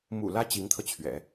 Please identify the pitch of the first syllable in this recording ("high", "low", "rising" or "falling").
low